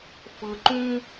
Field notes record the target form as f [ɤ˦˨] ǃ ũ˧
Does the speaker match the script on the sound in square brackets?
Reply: no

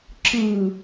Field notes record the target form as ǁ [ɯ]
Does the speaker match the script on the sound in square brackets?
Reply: yes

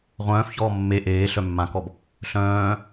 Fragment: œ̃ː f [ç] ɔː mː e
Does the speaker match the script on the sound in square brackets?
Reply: yes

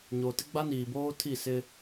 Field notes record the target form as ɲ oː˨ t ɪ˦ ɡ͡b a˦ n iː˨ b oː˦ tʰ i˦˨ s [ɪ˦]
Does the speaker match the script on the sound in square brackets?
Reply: yes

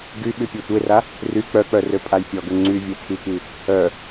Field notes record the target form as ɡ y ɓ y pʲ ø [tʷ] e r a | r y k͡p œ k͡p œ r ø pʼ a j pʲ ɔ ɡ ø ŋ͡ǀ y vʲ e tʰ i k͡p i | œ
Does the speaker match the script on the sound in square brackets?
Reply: yes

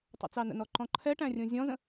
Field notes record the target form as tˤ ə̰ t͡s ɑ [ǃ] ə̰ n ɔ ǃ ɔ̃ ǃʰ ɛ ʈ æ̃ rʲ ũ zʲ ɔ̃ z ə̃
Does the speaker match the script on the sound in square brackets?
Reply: no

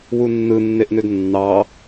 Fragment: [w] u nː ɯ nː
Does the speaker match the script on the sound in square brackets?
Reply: yes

